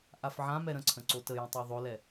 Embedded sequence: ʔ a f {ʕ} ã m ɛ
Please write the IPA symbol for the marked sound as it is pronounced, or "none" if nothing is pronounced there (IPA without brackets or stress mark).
ʕ